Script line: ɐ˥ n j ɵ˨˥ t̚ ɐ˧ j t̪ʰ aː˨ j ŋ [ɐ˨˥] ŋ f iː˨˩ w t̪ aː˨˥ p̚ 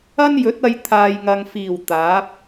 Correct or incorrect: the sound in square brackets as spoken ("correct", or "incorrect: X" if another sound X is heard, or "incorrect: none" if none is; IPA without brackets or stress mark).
incorrect: ɐ˨